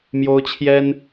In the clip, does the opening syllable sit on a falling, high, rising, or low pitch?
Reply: high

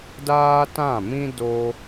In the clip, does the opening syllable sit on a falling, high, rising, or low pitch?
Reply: high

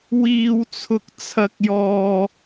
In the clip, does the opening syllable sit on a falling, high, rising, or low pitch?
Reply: high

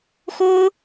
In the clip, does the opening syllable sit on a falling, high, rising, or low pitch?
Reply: high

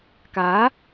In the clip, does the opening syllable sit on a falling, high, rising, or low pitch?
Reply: rising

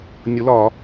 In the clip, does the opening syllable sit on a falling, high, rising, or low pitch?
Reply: rising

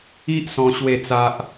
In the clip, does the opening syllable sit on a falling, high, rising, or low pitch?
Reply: high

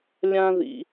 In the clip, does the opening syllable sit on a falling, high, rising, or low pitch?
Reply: high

